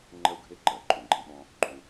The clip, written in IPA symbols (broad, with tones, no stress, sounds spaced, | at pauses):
ŋ͡ǃ ɜ˥ u̯ ɡʱ e˥ ǃ ɜ˩ ǃʼ ũ˩ ɡ͡ǃ ẽ˥ ɓ ɔ̃˥ | ɡ͡ǃ ũ˧